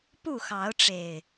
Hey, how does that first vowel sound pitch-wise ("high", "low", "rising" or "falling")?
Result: falling